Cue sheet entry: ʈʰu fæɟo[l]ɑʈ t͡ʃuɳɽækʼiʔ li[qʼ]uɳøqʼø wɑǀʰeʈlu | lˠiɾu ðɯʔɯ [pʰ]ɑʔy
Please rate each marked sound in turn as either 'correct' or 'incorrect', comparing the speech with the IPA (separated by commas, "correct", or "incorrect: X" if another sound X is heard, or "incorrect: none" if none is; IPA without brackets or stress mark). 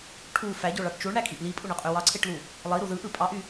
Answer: incorrect: ɭ, incorrect: pʼ, incorrect: pʼ